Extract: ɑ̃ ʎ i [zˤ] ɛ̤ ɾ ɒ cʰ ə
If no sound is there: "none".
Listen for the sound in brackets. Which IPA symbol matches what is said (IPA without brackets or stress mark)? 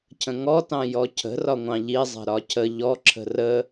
zˤ